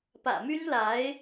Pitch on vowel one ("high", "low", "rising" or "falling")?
low